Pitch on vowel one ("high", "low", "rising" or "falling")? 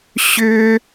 high